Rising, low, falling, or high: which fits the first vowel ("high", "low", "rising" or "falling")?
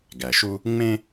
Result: low